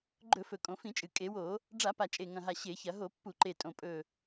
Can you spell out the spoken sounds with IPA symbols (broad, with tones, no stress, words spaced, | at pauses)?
ɡ͡ǃɵ˧˩˧fɵ˨˩ kʼõ˧˩˧fĩ˧˩˧t͡ʃʼɨ˨˩ kʼe˧˩˧wo˧˩˧ | ɖ͡ʐa˧˩˧pa˨˩ t͡ʃʼe˨˩ŋɐ̃˨˩ɦa˨˩ ɕe˧˩˧çɐ˧˩˧ ɦo˧˩˧pːu˧˩˧ǃe˨˩ tʼõ˨˩ pʼɵ˨˩